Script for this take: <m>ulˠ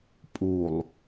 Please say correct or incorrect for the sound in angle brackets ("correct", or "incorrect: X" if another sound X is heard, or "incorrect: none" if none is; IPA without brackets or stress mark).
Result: incorrect: pʼ